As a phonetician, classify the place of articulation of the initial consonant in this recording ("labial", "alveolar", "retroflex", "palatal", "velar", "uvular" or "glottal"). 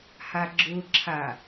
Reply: glottal